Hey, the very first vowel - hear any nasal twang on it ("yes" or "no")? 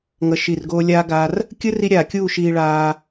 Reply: no